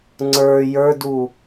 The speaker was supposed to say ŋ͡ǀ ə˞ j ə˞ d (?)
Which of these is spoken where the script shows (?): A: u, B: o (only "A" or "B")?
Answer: A